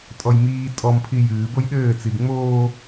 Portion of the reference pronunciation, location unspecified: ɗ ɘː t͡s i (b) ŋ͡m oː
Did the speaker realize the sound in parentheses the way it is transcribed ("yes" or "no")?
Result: yes